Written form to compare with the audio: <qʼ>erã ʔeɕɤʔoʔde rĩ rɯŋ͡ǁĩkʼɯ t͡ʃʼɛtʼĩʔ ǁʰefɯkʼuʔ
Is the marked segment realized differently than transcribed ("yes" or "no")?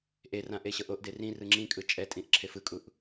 yes